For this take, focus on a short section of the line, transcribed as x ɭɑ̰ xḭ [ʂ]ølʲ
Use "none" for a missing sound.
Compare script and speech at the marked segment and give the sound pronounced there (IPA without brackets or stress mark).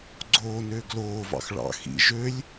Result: ʒ